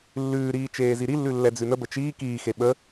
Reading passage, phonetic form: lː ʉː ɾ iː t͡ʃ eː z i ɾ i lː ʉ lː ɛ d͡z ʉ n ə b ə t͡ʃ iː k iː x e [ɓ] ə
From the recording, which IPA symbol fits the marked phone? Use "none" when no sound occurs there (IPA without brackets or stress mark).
ɓ